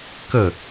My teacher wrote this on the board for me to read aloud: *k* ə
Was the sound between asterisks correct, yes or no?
yes